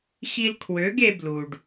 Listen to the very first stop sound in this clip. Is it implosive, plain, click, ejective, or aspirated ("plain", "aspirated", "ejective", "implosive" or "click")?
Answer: aspirated